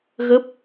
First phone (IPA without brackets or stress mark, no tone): ɣ